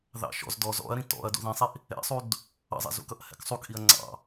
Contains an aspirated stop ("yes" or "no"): no